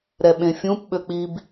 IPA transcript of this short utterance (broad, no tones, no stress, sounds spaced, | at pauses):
ɾ ɛ ɓ ẽ fʲ ũ p ɓ ø k͡p i b